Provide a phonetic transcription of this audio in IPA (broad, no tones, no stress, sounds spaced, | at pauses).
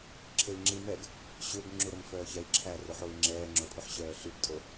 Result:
ǁʰ e i̯ ŋ͡ǁ i m ɛ ɡ | ɕ ø ɡ ŋ͡ǁ u ɾ ɵ m f œː ç ɛ i̯ ǁʰ æ r ɵ ħ o i̯ ŋ͡ǁ ɛː ŋ͡ǁ o pʰ ɵ ħ ɕ œː ɬ y ɡ tʼ o